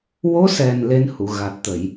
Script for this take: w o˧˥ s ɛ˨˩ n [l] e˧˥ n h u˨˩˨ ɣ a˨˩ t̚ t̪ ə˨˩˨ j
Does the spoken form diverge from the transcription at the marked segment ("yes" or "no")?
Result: no